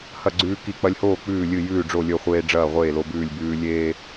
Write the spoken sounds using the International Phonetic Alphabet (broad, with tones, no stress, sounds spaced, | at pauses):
h ɐ˥˩ ɡ͡ǀ ʉː˦ k i˥˩ k͡p ɐ˦ lʲ h oː˥˩ k͡p ʉː˥˩ lʲ ɨ˥˩ j ʉː˥˩ ɖ͡ʐ o˥˩ lʲ ɵ˥˩ χʷ eː˦ ɖ͡ʐ ɐː˥˩ ʁʷ eː˥˩ l o˦ b ʉː˥˩ lʲ b ʉː˦ lʲ eː˦